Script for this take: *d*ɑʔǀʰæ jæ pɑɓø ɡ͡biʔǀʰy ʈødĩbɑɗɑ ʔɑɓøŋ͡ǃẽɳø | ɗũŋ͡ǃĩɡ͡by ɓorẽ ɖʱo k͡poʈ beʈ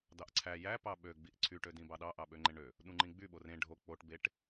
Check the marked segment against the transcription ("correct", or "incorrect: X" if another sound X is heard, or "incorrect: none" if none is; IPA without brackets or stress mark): correct